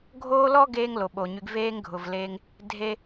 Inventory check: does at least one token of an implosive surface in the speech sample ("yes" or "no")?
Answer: yes